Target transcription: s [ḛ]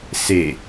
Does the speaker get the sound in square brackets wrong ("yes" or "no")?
yes